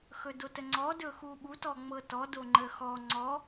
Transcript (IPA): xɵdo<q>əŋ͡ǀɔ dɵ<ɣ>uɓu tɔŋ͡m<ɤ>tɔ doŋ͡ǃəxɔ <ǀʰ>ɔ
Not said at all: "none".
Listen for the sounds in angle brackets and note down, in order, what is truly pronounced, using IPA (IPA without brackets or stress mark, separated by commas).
t, x, ɤ, ŋ͡ǀ